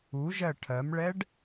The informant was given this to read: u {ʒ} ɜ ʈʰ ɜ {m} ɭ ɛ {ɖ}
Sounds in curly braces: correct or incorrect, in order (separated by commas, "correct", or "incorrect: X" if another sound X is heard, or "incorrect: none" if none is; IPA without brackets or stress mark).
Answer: correct, correct, correct